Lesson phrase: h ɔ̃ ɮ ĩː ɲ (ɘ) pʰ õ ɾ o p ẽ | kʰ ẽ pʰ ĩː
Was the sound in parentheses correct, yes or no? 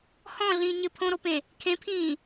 yes